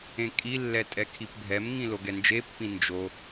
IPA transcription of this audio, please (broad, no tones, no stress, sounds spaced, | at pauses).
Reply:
ẽ kʼ i lː ɛ tʼ ɛ kʰ i p bʱ ɛ m ŋ ĩ l o ɡ ɛ n d͡ʒ e pː ĩ n d͡ʒ o